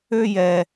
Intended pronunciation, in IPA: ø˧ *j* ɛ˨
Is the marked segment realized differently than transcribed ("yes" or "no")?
no